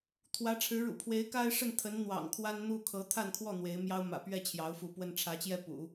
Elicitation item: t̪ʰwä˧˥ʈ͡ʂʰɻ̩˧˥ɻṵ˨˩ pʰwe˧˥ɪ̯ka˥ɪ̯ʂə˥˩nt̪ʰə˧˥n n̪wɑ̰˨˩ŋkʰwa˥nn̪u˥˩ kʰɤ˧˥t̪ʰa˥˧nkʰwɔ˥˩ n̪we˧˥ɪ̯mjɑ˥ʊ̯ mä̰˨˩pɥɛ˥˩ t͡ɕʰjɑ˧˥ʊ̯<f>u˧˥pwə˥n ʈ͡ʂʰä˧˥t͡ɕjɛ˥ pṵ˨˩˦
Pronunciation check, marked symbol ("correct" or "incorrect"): correct